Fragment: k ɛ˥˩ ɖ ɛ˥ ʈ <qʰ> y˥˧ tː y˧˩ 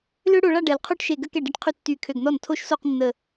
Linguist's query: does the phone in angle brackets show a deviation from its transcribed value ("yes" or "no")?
no